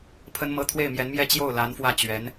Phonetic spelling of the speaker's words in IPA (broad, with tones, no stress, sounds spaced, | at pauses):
pʰ ə˥ n m ɤ˥ t̪ʰ w e˥˩ ɪ̯ m j ɛ˧˥ n m j ɛ˥˧ t͡ɕ j o˥˩ ʊ̯ l a˧˥ n f w ä˥˩ t͡ɕ ɥ ɛ˧˥ n